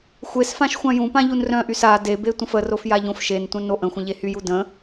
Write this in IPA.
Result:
xʷ e s f ã ʃ xʷ ã j ũ p ã ʎ u n r œ̃ ʔ y s a d e b e tʷ ə̃ f ə r o f j a ʎ õ f ʃ e n tʷ œ̃ n o ʔ ə̃ xʷ ə̃ ʎ e h y j u d ə̃

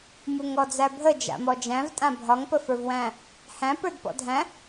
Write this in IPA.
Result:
m u ŋ ɔ d͡z æ bʱ ə d͡ʒ a̰ m ɔ d͡ʒ æ̃ v tʼ ã bʱ ɒ ŋ p ə f ə˞ v w æ̃ | h æ̃ p ə˞ d p ɔ̰ dʱ æ̃

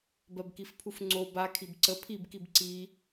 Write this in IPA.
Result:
b ɜ b k i f pʰ u f ŋ͡ǀ o b a kʰ i b ǀ ə pʰ i b k i b ǀ i

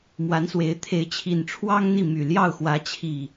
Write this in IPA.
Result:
m w a˨˦ n s w e˨˦ ɪ̯ t̪ʰ e˨˦ ɪ̯ t͡ɕʰ i˨˩ n ʈ͡ʂʰ w ɑ˦ ŋ n̪ i˥˨ m y˨˩ l j ɑ˥˨ ʊ̯ x w ä˨˦ t͡ɕʰ i˨˩

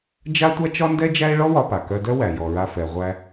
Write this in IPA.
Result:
d͡ʒ a˥ tʷ a˥ t͡ʃ ɒ˥ n d ɛ˥ d͡ʒ æ˥ e̯ ɭ ɔ˥ w ɒ˧ p a˩ k œ˧ d œ˥ w æ˩ j ɔ˩ ɹ a˧ f ɛ˩ ʁʷ æ˧

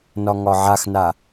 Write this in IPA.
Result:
n ɒ ŋ ɒ ʕ a x n a

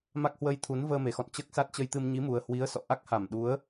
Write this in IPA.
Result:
m a˦˥ k̚ h w ə˧ j t̪ʰ u˨˦ n v əː˧ m e˨˩ x ɔ̰˧˨ n t͡ɕ əː˦˥ k̚ s a˦˥ t̚ t͡ɕ ə˧ j t̪ ɨ˧ m ɲ i˨˦ m u˨˩ ə̯ h w i˨˦ ə̯ s ɔ̰˧˨ ʔ a˦˥ k̚ h a˧˩ m ɗ u˨˦ ə̯

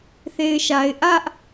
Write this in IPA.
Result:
θ e˨ ɪ̯ ʃ a˨ ɪ̯ ʔ ä˦ ʔ

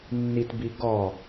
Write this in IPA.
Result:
nː i t b i ɡ ɔ

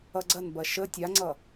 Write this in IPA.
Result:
ʌ ɡ͡ǀ ɐ n b ɐ ʃ ə tʲ a ŋ͡ǀ ʌ

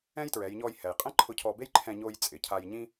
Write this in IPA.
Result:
ɛ̃˥ j t ɹ ɛ˩˧ j ɲ ɔ˧ j h ɛ˩ j qʼ ɛ̃˥ ǃʰ ʊ˧˥ cʰ ɔ˧ b e˥ j ǃʰ ɛ̃˧ ɲ o˧ j t͡sʼ ɪ˩ cʰ a˧ j ɲ ĩ˥

